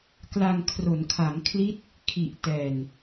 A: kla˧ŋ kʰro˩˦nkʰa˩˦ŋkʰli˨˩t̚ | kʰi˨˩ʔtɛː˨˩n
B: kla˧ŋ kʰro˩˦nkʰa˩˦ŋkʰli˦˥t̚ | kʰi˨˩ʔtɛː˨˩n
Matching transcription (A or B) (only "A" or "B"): B